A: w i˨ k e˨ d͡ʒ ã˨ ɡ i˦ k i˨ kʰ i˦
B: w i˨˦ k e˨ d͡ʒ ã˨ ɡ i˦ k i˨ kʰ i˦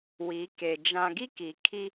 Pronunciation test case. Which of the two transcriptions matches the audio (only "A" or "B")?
B